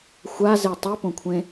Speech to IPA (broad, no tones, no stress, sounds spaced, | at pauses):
xʷ a z e tˤ i p õ kʷʰ ẽ